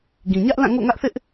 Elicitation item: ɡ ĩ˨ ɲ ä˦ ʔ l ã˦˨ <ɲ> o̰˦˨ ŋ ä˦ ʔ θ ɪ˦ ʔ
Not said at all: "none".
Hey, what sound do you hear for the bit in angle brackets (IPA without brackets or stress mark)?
ŋ